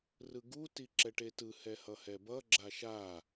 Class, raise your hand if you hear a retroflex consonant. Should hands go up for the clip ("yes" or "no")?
yes